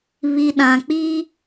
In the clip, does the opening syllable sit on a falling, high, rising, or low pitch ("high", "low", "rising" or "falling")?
low